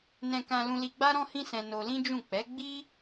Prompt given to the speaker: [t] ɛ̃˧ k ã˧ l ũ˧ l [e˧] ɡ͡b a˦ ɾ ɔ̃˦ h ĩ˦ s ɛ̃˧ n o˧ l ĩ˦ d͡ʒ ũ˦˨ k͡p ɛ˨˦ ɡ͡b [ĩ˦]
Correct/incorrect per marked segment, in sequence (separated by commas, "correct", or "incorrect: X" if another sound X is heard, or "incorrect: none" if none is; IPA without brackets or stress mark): incorrect: n, incorrect: i˧, incorrect: i˦